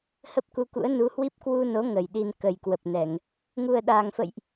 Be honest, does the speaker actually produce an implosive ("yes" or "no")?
yes